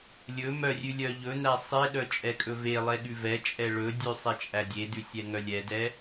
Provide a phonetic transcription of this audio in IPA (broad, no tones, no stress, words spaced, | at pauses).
lʲɵ mœrʲʉ lʲœʎɵnæ sˤeɗœ t͡ʃʼɛkʼɵvelˠɛ ɠʉvɛt͡ʃʼɛ ɭɵdʲʉ sˤɛt͡ʃʼædʲedʉ sʲɛŋœlʲɛdɛ